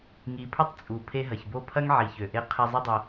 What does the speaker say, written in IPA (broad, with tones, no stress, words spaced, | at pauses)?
ŋi˨pʰʊ˦tˤ t͡sʼu˨ pʰe˧ɦɐ˨çbo˦˨pʰɐ˦ŋ ʕi˨çø˨ʔe˧ qʰe˧zˤɪ˦dˤɐ˧